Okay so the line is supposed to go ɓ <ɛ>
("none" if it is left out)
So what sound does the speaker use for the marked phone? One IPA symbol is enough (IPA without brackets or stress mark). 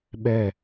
ɛ